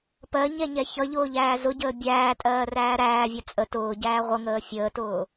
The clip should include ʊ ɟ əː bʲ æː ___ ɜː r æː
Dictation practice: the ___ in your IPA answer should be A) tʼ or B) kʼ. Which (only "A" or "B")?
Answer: A